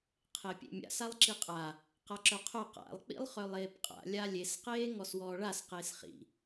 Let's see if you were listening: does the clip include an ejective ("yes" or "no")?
yes